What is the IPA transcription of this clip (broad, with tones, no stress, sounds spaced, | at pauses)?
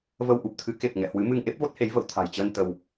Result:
v ə˧ w ʔ u˨˩ p̚ t̪ʰ ɨ˨˦ k e˨˩ p̚ ŋ ɛ̰˧˨ h w ɨ˨˦ m ɨ˧ ŋ ʔ e˦˥ p̚ v o˦˥ t̚ h e˨˦ j v ə̰˧˨ w t̪ʰ a̤˨˩ j t͡ɕ əː˧ n t̪ ə˧ w